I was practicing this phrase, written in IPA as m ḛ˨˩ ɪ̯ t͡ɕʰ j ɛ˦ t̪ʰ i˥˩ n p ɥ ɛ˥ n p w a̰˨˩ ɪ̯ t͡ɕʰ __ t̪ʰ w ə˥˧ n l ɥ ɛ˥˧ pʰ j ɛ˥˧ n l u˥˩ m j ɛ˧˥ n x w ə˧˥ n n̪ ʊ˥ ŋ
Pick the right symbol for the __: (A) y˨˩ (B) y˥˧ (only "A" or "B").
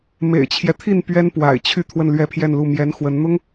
B